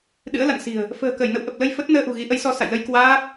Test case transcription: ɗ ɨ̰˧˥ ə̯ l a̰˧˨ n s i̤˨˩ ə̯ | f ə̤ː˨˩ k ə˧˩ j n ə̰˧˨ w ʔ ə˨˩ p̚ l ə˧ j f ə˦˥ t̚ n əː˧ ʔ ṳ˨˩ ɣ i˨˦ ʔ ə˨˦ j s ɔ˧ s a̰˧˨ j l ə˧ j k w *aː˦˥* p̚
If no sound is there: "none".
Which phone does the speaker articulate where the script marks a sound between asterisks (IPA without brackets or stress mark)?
aː˦˥